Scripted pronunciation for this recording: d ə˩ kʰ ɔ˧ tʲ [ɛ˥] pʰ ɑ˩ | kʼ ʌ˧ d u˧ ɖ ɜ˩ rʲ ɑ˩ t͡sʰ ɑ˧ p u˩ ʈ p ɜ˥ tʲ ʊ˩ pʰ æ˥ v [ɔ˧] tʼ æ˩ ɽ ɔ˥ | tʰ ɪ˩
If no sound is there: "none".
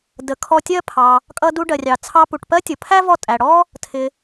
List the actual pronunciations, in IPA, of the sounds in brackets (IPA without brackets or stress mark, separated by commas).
ɜ˥, ɔ˧